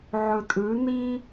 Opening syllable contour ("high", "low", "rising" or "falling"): low